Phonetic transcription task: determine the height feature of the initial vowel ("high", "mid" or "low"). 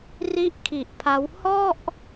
high